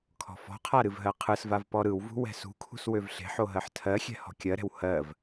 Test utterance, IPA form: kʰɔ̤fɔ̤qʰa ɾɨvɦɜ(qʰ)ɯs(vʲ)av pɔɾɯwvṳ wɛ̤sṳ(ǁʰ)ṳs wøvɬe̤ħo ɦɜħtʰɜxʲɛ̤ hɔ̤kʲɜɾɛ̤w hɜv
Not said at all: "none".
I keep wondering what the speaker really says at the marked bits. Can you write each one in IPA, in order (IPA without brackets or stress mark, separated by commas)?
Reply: qʰ, v, kʰ